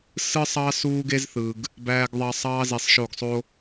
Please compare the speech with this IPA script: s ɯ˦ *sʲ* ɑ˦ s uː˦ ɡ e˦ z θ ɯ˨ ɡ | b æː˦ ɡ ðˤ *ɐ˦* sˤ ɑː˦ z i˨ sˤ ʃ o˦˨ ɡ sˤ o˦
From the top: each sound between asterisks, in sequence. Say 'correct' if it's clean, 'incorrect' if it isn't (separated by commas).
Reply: incorrect, incorrect